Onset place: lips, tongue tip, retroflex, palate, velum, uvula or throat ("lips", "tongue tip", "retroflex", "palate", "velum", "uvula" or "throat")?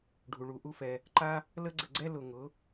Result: retroflex